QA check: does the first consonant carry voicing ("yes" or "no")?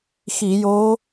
no